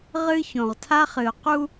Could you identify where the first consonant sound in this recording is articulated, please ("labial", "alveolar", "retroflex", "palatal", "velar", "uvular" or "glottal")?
uvular